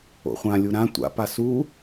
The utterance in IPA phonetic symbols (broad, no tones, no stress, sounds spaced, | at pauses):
o̰ χʷ ã lʲ u ɾ ã tʷ a̰ p a s u